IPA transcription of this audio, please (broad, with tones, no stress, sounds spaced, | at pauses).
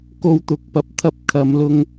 k o˧ w t̪ ʊ˨˥ k̚ p ɐ˨˥ p̚ t̪ʰ ɐ˧ p̚ kʰ ɐ˨˧ m l ʊ˧ ŋ